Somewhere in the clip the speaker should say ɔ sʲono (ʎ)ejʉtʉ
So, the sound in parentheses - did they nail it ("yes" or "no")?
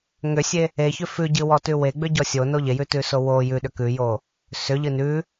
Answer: yes